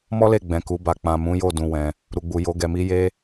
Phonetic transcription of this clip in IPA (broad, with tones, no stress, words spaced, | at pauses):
mɔ˦le˦˨ɡ͡bɛ̃˨ ku˨˦ba˧ k͡pã˨mũ˨˦jo˦˨ dũ˧wɛ̃˧ | ɾu˨ɡ͡bu˨ jo˨˦ɡɛ˧mi˦ je˦